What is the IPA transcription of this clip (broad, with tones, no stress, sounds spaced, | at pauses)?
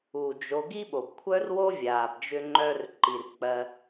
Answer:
u˩ d͡ʒ o˨ ɡ i˥ ɓ o˩ b kʷʰ œ˥ r w o˥ vʲ aː˩ b d͡ʒ ʏ˦ ŋ͡ǃ œ˦ r ǃ i˩ r k͡p ɜ˨